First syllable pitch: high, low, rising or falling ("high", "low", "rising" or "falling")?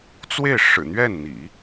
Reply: falling